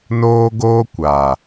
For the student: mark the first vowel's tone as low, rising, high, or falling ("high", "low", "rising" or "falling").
high